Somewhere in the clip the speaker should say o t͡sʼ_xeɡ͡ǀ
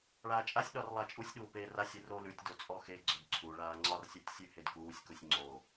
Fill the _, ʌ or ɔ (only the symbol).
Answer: ɔ